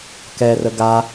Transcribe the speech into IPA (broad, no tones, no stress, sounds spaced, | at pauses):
k ɛ r ə ɡ a